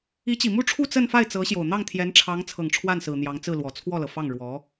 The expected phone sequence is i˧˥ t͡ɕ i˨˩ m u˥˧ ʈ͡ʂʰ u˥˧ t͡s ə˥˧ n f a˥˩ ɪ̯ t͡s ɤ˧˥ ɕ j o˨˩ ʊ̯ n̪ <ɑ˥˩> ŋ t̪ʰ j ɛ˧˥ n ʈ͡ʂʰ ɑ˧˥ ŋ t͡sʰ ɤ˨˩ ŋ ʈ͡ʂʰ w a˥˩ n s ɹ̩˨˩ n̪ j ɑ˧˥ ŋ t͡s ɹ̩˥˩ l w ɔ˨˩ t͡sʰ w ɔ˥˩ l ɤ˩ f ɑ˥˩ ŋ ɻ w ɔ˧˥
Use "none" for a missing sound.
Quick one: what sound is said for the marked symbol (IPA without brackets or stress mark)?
ɑ˥˩